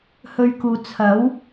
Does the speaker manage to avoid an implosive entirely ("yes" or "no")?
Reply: yes